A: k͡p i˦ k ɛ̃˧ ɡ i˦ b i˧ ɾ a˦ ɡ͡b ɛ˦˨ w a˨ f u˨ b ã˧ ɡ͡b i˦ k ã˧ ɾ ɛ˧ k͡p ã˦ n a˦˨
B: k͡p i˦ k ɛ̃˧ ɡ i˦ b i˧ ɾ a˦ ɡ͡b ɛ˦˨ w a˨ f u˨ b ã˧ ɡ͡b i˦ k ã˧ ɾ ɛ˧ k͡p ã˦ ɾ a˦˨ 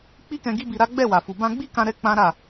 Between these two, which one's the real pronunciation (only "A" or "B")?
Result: B